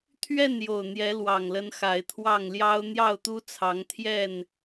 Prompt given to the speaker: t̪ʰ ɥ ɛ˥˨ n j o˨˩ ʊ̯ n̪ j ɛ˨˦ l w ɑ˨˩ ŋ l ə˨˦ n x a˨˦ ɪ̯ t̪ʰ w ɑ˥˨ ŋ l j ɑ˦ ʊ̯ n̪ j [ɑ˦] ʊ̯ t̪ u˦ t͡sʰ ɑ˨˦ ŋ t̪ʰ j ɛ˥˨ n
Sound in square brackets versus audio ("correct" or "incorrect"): incorrect